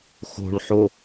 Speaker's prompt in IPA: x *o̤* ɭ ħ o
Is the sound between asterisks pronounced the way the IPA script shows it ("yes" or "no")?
yes